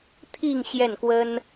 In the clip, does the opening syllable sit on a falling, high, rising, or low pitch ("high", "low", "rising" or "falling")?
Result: falling